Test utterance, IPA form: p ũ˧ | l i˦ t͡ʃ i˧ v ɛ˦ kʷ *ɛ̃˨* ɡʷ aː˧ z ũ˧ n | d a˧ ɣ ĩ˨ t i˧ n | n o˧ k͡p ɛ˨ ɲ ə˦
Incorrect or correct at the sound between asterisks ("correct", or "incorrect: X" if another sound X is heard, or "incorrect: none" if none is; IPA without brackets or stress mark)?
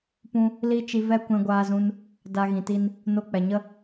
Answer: incorrect: ɛ̃˧